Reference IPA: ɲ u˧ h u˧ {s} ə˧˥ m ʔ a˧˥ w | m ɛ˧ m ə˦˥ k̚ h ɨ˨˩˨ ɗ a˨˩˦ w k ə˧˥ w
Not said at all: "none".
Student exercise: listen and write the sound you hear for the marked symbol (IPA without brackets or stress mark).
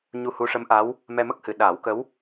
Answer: ʂ